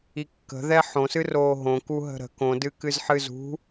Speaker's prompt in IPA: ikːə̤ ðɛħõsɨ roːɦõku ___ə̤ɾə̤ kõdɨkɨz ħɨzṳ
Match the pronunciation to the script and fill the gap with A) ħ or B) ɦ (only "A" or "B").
B